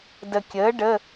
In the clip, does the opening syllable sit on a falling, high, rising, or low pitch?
low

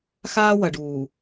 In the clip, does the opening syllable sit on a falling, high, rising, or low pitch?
high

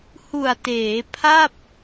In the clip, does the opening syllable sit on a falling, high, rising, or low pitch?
low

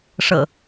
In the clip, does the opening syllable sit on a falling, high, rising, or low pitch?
low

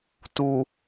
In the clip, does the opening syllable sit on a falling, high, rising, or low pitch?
low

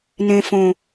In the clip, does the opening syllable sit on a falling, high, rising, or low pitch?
high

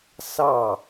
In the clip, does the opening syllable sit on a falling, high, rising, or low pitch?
falling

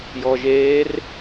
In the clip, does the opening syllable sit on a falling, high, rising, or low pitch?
low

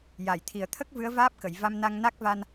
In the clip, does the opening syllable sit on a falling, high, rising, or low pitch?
low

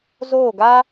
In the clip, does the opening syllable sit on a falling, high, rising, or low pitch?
falling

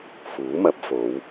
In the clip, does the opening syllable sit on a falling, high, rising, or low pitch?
rising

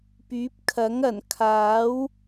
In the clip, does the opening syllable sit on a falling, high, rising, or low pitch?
rising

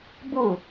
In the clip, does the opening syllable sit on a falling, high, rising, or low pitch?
falling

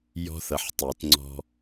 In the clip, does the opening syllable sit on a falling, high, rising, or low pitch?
high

